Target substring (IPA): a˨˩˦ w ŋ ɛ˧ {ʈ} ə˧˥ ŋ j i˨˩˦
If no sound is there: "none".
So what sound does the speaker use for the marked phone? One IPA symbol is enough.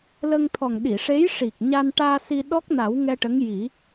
ʈ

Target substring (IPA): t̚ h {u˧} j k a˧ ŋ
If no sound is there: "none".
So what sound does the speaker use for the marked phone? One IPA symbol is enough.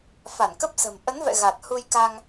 u˧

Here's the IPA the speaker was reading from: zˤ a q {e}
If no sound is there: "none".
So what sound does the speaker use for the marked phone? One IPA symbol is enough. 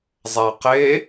e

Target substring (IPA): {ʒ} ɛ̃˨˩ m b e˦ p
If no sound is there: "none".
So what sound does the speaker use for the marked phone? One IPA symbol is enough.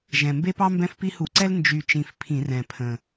ʒ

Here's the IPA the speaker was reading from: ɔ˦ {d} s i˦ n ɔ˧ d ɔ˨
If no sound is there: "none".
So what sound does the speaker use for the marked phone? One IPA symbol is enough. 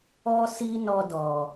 none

